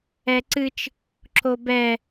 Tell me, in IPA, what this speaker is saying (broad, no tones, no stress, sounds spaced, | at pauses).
ɛ ǀ ɨ t͡ʃ | ǁ o b ɛ